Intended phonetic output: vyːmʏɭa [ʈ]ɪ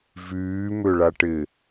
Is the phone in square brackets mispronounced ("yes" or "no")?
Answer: no